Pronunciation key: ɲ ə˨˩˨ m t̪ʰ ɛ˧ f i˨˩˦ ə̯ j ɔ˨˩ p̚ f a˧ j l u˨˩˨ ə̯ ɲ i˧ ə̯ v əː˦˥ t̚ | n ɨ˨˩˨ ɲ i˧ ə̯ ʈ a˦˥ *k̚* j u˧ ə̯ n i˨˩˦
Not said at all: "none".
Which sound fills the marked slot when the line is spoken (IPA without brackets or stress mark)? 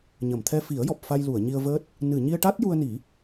t̚